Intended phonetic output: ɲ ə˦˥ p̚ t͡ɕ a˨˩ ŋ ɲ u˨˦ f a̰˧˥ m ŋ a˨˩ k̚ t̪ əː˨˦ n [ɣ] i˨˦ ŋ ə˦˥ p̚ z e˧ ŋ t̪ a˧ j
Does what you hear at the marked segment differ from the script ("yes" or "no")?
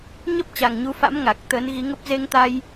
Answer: no